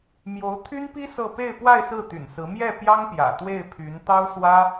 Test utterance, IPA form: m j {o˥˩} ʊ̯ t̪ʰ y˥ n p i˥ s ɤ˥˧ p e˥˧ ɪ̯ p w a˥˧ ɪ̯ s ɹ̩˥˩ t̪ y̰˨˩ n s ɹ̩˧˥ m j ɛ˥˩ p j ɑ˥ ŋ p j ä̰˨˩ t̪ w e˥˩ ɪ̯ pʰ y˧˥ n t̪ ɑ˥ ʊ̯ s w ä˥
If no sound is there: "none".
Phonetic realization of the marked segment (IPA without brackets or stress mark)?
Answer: o˧˥